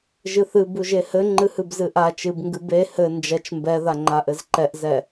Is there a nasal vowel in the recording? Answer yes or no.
no